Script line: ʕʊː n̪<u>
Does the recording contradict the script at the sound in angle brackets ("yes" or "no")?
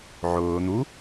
no